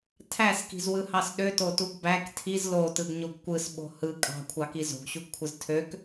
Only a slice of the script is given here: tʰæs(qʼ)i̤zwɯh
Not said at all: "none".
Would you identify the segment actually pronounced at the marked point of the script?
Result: k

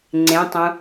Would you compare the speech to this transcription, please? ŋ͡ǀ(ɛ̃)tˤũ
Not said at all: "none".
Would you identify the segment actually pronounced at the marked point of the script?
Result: ẽ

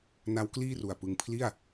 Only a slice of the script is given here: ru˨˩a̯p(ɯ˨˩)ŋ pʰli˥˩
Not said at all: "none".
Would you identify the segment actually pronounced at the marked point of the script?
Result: ɯ˧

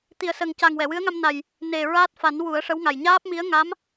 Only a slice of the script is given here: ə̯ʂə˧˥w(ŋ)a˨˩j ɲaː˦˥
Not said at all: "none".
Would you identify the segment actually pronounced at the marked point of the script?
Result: ŋ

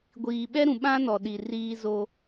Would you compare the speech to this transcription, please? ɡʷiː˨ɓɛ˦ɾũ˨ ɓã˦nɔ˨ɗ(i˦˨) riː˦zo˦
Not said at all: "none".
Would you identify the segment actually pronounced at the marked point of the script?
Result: i˨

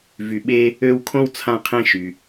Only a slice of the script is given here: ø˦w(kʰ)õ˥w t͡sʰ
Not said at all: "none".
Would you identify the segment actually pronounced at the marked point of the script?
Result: kʰ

